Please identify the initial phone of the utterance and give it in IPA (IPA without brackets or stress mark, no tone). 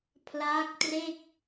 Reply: pʰ